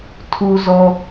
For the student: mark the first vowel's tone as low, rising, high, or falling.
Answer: low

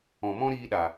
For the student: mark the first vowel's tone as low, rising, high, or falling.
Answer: low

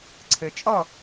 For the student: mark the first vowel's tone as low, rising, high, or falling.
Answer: low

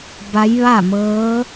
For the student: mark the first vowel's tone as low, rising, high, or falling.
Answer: rising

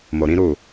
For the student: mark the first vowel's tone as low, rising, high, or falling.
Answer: low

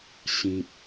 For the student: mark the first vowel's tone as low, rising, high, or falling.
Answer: low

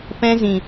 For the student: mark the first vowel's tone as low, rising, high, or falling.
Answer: high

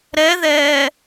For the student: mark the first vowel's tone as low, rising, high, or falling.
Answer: rising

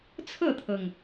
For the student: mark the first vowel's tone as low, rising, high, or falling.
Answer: falling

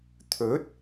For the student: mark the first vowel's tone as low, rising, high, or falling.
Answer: rising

